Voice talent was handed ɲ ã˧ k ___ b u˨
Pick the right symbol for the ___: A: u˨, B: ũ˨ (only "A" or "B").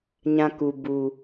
A